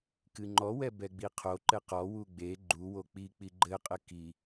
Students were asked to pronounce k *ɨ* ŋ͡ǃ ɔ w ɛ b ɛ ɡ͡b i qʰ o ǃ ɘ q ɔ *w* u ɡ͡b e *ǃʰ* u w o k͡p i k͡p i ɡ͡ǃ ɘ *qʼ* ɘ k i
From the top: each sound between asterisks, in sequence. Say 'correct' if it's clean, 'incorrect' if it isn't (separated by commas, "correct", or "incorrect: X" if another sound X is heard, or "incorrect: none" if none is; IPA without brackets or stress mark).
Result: correct, correct, incorrect: ɡ͡ǃ, correct